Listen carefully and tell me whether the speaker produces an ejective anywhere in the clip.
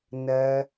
no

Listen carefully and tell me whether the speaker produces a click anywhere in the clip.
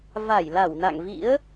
no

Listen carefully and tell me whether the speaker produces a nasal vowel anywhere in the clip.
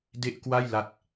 no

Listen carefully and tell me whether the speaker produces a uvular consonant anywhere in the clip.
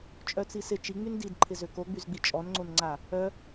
no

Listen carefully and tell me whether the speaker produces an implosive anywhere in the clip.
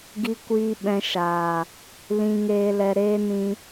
yes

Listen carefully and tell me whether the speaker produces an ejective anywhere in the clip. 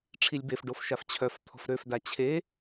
no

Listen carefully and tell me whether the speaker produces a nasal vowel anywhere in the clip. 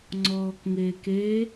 no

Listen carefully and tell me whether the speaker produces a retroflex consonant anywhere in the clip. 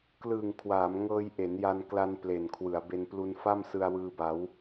no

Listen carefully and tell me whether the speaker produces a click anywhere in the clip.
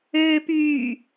no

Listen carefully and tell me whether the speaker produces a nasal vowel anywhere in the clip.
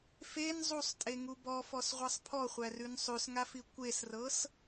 no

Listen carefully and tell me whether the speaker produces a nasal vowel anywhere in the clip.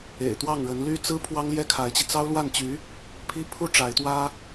no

